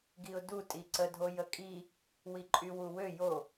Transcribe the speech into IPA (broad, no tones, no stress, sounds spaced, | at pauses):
ɡ i ʊ̯ d u tʼ i ǀ ə dʱ o j ə kʼ i | w i ǃʼ y w u w ø j o